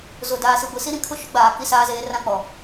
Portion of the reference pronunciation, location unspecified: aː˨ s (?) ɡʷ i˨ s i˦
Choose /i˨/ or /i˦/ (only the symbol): i˨